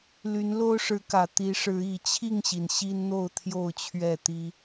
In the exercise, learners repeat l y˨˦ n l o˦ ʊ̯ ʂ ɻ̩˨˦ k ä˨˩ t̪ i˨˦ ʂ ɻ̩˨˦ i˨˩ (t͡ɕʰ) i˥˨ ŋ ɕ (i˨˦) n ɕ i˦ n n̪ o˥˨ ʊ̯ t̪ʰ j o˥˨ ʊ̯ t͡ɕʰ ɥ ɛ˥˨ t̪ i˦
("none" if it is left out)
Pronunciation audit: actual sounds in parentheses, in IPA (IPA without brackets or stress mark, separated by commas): t͡ɕʰ, i˩